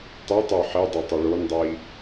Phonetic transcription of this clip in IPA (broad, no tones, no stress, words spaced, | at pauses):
tˤɨtˤu ħidˤu tˤʉɭondˤi